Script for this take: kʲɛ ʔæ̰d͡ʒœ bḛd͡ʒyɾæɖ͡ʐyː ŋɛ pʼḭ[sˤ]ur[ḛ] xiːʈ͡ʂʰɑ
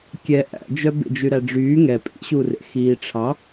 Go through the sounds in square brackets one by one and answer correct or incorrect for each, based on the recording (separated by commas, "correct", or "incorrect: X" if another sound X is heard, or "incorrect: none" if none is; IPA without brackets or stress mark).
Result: incorrect: ɕ, correct